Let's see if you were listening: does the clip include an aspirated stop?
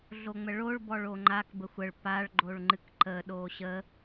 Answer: no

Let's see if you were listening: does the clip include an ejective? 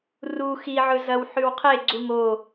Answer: no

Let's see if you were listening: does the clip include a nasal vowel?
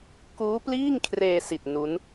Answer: no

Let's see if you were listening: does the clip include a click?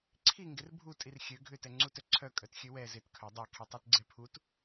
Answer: yes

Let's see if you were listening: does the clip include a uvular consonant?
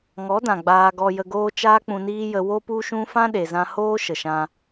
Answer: no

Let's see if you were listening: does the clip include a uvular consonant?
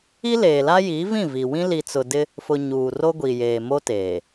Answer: no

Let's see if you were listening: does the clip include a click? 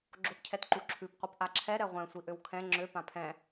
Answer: yes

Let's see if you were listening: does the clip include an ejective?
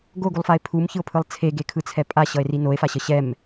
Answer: yes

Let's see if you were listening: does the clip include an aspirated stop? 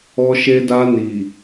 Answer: no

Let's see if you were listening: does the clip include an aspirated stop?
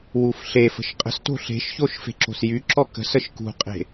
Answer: no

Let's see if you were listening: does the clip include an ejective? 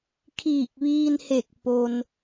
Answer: no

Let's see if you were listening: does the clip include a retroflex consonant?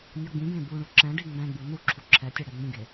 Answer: yes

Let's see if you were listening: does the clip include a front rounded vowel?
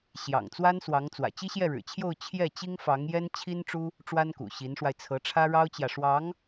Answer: no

